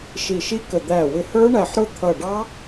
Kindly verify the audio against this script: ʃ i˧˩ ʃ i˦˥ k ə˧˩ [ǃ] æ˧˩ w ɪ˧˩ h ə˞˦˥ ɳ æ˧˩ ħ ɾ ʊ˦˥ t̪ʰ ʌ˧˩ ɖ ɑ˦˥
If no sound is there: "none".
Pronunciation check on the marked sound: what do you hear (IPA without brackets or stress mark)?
d̪